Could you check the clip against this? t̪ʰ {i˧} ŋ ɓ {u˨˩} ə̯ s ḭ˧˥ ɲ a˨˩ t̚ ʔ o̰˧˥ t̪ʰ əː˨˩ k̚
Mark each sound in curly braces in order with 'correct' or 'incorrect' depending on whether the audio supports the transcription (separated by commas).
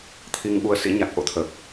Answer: correct, incorrect